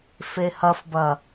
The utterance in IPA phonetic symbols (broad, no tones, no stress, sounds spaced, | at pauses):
f e h ɐ f b ɐ